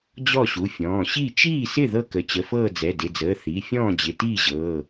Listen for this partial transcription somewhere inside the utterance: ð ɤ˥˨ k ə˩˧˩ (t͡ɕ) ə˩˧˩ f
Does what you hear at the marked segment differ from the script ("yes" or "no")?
no